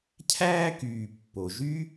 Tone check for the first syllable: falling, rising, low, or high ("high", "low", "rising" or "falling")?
high